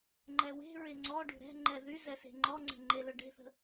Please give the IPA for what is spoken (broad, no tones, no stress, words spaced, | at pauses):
ŋ͡ǃɛwe̤ɹe ŋ͡ǀɔɖṳ ɾɛ̤ŋ͡ǃɛ ðyzɛ se̤ŋ͡ǃɔŋ͡ǀə̤ ŋ͡ǃelɵɖe̤θə̤